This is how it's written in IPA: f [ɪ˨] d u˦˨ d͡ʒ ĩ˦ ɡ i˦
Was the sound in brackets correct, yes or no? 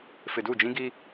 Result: yes